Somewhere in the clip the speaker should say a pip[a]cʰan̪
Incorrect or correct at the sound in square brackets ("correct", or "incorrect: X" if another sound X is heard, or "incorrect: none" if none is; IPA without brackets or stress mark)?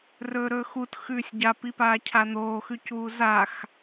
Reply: incorrect: aː